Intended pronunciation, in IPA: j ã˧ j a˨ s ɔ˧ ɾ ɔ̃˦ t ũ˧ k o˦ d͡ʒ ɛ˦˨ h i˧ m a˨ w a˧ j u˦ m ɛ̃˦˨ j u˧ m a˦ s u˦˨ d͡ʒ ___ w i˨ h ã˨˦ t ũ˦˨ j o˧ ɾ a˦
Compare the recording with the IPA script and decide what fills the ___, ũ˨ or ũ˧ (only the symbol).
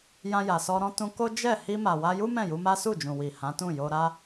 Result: ũ˨